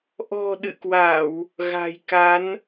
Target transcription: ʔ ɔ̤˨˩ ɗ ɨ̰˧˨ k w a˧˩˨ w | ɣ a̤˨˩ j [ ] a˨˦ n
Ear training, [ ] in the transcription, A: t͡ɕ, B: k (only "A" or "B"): B